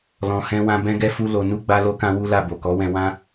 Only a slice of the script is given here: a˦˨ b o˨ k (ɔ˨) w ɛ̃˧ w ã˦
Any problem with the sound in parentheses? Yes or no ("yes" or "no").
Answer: yes